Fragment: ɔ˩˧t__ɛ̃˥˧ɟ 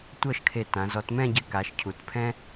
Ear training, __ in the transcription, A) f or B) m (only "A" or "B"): B